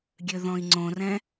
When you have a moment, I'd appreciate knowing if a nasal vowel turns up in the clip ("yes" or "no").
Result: yes